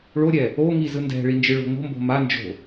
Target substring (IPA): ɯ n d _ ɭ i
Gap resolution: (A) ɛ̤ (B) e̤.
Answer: A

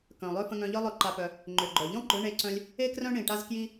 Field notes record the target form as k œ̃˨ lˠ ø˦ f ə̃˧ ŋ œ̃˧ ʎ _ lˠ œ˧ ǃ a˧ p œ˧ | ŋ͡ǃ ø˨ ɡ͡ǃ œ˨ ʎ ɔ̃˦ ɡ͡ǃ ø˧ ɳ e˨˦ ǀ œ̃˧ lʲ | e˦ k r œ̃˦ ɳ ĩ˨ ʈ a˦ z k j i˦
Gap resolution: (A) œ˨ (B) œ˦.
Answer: B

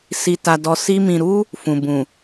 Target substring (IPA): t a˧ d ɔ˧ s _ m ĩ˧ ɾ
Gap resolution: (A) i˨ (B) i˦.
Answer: B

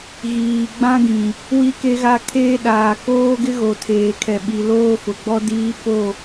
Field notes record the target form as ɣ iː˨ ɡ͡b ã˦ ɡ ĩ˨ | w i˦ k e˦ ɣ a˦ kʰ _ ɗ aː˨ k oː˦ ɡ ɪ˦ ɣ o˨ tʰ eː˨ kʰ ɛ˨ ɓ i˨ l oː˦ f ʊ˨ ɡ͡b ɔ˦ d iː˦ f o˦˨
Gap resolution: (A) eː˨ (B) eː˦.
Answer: B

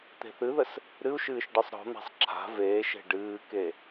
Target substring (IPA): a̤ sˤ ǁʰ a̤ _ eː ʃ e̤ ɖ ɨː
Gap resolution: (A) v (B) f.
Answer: A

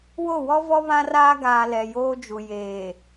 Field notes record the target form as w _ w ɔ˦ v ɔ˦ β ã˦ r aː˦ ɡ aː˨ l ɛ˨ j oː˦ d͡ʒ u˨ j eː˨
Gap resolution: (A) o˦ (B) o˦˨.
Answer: B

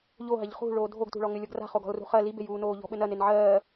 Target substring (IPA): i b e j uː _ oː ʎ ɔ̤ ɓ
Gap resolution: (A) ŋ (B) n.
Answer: B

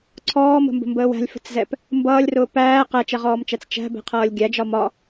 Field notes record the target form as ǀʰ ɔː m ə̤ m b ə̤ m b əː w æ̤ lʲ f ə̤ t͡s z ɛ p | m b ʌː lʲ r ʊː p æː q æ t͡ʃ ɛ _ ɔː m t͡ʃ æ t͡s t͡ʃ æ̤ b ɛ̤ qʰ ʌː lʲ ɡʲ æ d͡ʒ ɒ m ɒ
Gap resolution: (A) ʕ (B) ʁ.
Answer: B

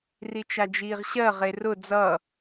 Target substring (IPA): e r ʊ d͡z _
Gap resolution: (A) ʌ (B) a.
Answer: A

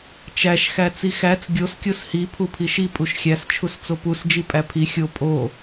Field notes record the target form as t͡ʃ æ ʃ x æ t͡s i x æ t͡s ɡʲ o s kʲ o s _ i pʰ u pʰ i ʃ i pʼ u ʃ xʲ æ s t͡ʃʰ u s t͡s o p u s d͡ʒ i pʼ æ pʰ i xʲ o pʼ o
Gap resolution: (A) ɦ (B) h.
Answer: B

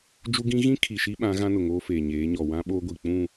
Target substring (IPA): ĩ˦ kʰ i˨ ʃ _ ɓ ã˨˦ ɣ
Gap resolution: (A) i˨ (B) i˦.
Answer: B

